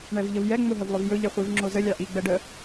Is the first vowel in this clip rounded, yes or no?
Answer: no